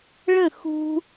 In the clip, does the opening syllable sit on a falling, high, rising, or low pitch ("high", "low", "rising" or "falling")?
falling